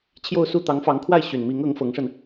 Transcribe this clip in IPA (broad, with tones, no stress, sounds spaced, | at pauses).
t͡ɕʰ j o˥˧ ʊ̯ s u˥˩ t̪ ɑ˧˥ ŋ f ɑ˧˥ ŋ kʰ w a˥˩ ɪ̯ ɕ y˨˩ n m i˧˥ ŋ ɤ˧˥ ŋ f ɤ˧˥ ŋ ʂ ə˧ n